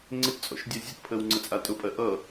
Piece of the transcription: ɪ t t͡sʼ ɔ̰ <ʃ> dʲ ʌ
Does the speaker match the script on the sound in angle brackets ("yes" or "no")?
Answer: yes